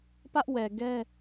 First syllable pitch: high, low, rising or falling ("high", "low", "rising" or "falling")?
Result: high